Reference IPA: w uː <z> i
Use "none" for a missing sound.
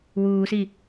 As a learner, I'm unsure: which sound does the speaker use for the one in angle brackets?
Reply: s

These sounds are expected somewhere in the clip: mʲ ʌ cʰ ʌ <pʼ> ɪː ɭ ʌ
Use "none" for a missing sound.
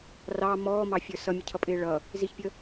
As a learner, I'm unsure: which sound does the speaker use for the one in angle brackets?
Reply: pʼ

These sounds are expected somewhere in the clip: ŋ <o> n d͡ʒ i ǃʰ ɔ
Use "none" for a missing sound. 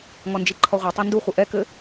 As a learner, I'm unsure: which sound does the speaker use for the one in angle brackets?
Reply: ɔ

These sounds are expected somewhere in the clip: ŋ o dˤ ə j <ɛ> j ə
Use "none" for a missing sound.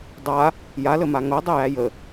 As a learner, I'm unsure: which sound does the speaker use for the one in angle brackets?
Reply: æ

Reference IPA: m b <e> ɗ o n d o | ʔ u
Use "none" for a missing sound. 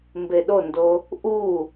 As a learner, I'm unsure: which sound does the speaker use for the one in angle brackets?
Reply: e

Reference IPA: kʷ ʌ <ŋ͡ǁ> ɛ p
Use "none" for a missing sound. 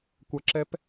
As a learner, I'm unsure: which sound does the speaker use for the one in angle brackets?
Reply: ǁ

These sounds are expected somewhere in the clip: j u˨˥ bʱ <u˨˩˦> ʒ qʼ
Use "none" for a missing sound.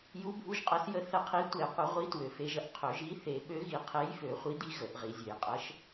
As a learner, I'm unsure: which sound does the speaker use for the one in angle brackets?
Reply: u˨˥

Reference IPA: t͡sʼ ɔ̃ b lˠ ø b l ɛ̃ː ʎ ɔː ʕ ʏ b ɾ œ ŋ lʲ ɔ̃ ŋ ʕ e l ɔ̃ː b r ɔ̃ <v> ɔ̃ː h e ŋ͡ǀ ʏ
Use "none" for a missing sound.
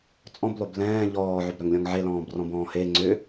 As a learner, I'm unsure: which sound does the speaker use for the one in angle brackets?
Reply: b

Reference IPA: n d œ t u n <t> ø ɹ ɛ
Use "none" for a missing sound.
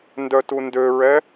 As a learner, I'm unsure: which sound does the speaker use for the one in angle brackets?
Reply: d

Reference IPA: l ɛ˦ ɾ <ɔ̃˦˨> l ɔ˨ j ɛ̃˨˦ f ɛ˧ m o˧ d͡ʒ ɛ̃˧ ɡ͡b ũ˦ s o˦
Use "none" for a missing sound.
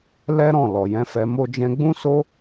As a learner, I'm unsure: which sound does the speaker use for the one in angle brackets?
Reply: ɔ̃˦˨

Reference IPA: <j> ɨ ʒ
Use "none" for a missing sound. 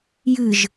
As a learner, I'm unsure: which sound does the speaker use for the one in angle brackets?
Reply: j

